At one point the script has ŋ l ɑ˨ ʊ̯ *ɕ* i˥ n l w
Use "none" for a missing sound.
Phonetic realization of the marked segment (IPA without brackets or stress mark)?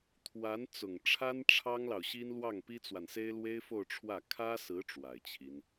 ɕ